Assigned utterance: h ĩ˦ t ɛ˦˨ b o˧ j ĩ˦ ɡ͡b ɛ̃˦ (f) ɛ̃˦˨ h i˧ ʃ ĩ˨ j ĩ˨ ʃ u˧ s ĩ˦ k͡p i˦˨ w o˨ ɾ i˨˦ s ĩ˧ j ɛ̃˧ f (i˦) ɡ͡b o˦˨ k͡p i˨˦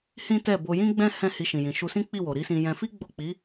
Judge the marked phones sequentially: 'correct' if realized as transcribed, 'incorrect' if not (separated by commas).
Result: incorrect, correct